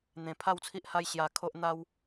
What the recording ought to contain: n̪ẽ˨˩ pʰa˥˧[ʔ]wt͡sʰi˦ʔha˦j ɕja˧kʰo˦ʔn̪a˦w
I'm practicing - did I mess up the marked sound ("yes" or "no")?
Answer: yes